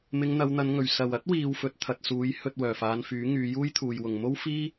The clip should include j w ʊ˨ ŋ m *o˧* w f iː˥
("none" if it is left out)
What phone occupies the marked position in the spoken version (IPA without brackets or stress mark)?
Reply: o˥